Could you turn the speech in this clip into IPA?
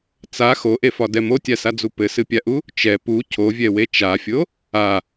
t͡s a x o ʔ e f ɒ d ɛ m o tʲ a s a d͡z u p ɘ s ɨ pʲ a ʔ u | t͡ʃ ɛ p u cʰ o vʲ ɛ w e t͡ʃ a fʲ o | a

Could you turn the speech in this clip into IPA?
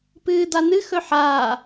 p ɨː d̪ a n̪ ɨ x ɵ ħ aː

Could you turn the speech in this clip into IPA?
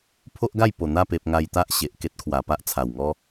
pʰ o˦ ʔ ɡ a˥˧ j p o˨˩ n̪ a˥˧ p e˨ p̚ ŋ a˧ j t̪ a˦ ʔ ɕ e˨ ʔ k e˦ t̚ kʰ w a˨˩ p a˦ ʔ t͡sʰ a˨˩ w ŋ ɔ˦

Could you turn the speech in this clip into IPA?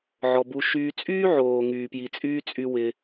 ʕ ɔ˧ b u˧ ʃ yː˦ t͡sʼ yː˦ ʕ oː˨ ŋ yː˨ p j i˨ t͡sʼ yː˦ t͡sʼ y˦ w ɪ˧

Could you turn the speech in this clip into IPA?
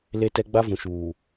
l e˦ t ɛ˦ ɡ͡b a˦ v ũ˨ ʃ uː˨

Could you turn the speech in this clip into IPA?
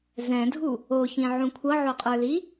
z ɛ̃ dʱ u | o ç ĩ ʕ ũ kʷʰ ʌ ʕ o qʼ ə˞ l i

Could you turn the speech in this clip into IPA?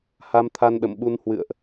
h a˧ m t̪ʰ a˧ n ɗ ə̰˧˨ m ɓ u˧ n h w ɨ̰˧˨ ə̯ ʔ

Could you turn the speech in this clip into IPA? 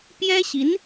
p j ɛ˥ ɕ i˧˥ n

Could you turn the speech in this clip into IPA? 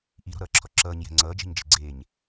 ʔ i ɾ ɔ̤ ɾ ʌː ǁʰ ɔ ǁ ʌː ɲ j ɛ̤ ŋ͡ǀ ʌː d͡ʒ ɛ̤ ɲ d͡ʒ e̤ ɡ͡ǀ eː ɲ

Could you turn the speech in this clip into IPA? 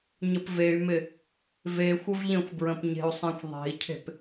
ɲ ə p v e y̯ m ɪ | v e xʷ ə v ʎ ə̃ xʷ b ɹ ə̃ p ɲ e̤ u̯ sˤ ẽ xʷ ðˤ e̤ i̯ cʰ e̤ p

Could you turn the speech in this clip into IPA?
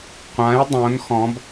qʷ ã j dˤ õ n x ɔ̃ b

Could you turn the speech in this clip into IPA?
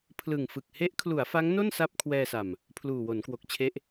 pʰ l ɯ˨˩ ŋ f ɯ˨˩ k̚ h e˦˥ ʔ kʰ l u˩˦ a̯ f a˦˥ ŋ n o˥˩ n s a˥˩ p̚ kʰ w ɛː˧ s a˨˩ m | pʰ l uː˨˩ w o˩˦ n k w o˨˩ k̚ t͡ɕʰ e˦˥ ʔ

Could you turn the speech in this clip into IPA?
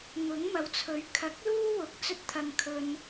ŋ ʊ˨˥ ŋ m ɐ˨˥ w t͡sʰ ɵ˨˥ ɥ kʰ ɐ˨˥ k̚ l uː˥ w ʊ˨˥ k̚ t͡s ɵ˥ t̚ t̪ʰ ɐ˧ ŋ kʰ ɵ˧ n

